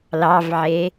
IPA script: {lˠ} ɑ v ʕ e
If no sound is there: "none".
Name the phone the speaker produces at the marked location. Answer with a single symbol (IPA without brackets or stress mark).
l